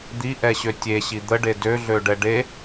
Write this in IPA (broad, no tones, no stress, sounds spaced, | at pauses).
d̪ i ʔ ɛ ɕ ø tʲ e ɕ i d̪ ə ɖ e d ø ɮ ø ɖ ɛ ɖ e